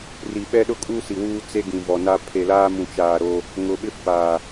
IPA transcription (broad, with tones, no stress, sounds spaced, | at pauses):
r i˨ ɓ ɛ˦ ɗ ʊ˦ kʼ u˦ s i˨ w uː˦ t͡s e˦ ɡ ĩ˨ v ɔ˨ n a˦ pʰ e˨ l aː˦ m ũ˨ t͡ʃ aː˨ ɾ o˦ | ŋ ʊ˨ ɓ ɪ˦ f aː˨